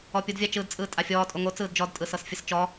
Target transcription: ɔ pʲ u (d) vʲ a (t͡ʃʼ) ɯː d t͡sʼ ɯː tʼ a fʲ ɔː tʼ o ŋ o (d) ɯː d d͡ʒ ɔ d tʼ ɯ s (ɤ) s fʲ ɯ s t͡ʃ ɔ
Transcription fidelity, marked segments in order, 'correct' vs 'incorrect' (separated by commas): correct, incorrect, incorrect, correct